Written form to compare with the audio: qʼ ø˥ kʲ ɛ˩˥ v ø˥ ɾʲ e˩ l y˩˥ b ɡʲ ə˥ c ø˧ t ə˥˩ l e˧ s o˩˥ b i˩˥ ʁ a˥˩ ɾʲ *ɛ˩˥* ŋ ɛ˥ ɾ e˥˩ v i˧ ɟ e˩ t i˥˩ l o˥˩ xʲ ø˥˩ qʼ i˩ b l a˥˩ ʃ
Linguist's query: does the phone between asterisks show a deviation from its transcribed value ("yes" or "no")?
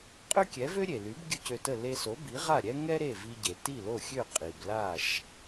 yes